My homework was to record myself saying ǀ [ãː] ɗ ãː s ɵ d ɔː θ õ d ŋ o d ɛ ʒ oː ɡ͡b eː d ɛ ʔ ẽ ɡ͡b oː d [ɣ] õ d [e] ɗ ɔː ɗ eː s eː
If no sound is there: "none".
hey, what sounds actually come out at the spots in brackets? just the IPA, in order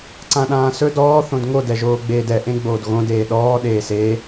ã, ɣ, eː

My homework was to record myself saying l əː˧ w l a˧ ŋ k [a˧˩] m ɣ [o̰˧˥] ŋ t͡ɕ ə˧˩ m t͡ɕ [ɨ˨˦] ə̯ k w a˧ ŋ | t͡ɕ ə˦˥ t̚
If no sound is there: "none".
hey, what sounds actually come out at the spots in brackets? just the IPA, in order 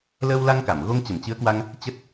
a˧˩, o˧, ɨ˨˦

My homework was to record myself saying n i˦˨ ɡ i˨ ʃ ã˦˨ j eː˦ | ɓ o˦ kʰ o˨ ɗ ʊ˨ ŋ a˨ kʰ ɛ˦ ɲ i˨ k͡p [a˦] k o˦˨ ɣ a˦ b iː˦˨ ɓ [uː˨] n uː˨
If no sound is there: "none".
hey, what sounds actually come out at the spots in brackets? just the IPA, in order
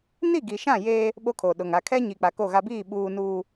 a˨, uː˨

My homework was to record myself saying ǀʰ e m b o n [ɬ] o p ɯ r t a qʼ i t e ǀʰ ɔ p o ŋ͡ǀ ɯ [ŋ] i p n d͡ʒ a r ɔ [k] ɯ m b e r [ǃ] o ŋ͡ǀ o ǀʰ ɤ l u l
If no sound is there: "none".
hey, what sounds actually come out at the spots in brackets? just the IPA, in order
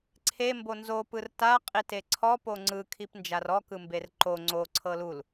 z, kʰ, k, ǃ

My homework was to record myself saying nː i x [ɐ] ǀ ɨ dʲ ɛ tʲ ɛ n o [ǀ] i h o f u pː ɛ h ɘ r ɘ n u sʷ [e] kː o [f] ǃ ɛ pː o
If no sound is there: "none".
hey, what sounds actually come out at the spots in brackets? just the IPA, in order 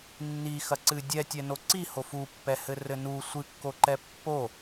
ɐ, ǀ, ɨ, none

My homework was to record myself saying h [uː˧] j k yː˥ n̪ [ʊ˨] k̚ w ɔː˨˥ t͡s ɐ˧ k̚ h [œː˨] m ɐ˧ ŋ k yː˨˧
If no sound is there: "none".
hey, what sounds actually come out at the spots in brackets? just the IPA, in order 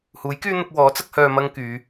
uː˨˥, ʊ˧, œː˨

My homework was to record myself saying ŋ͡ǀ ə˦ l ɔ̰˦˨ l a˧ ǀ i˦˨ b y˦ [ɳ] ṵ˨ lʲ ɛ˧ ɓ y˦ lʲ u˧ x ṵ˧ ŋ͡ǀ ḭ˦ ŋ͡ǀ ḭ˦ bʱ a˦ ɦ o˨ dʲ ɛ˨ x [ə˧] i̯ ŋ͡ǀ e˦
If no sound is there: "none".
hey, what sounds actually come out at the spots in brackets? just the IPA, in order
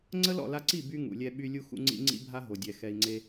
ŋ, ɛ˧

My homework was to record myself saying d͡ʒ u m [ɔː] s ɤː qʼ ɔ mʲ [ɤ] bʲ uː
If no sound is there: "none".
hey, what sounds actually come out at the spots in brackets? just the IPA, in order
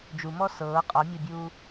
ɔ, ɔ

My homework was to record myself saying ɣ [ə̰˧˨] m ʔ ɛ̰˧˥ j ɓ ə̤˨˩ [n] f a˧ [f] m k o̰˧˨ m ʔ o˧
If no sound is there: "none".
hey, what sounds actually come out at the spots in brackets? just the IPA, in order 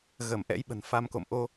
ə˧˩, n, none

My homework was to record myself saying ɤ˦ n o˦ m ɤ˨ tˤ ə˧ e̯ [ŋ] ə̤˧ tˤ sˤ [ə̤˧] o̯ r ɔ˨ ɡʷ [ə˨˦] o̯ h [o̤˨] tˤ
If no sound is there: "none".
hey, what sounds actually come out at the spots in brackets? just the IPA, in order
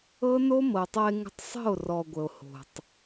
ŋ, ə̤˦˨, ə˨, o̤˨

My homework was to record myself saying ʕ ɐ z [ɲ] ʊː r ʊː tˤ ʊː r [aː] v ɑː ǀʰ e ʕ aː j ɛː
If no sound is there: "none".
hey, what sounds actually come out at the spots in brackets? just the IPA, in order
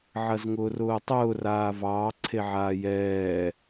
ŋ, aː

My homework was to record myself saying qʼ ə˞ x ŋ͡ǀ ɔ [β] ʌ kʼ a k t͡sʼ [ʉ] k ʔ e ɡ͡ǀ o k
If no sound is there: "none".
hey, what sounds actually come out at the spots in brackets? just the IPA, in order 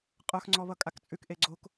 β, ʉ

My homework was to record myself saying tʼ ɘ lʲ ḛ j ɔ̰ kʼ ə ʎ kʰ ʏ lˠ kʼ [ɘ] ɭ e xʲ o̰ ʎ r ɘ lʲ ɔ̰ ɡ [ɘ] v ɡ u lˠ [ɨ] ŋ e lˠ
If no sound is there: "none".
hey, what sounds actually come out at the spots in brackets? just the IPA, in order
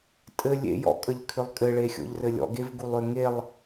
ɘ, e, ʏ

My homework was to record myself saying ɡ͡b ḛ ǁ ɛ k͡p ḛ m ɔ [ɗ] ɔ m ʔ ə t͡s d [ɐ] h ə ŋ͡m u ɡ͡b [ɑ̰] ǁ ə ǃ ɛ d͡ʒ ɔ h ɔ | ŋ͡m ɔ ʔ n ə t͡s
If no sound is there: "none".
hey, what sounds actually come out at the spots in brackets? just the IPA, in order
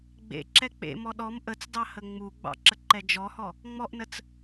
ɗ, ɑ, ɑ̰

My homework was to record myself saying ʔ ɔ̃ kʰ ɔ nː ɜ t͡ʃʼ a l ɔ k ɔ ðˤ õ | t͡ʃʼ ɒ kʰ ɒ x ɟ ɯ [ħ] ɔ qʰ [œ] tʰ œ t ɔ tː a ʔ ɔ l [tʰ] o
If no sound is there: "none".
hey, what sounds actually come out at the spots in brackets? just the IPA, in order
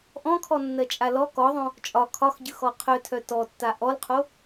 x, œ, qʰ

